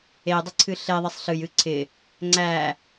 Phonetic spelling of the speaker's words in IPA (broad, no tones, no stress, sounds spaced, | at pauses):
e dˤ ɪ ǀʰ ɨ ɬ e ðˤ ɛ sˤ ɬ ɨ j ɨ ǀʰ ɪ | ŋ͡ǀ æ